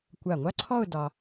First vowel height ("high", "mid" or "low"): low